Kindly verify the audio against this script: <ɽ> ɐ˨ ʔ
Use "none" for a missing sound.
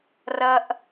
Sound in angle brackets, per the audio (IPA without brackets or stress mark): r